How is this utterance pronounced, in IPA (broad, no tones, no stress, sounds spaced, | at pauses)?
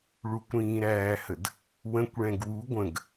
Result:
ɭ u kʷ ɾ ĩː ɾ æː h ə d | w ə̃ kʷ ɭ ɛ̃ ɡ w u ɡʷ ə̃ ɡ